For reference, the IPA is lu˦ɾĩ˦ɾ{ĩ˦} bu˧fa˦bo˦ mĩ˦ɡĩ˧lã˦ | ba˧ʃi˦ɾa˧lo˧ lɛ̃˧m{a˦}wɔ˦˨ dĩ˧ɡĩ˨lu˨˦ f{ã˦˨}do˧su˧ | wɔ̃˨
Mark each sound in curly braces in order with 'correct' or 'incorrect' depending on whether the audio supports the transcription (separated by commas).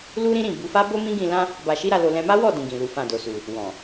incorrect, correct, correct